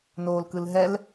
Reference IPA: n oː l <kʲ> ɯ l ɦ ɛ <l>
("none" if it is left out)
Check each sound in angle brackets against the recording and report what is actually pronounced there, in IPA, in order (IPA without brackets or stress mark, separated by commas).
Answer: k, l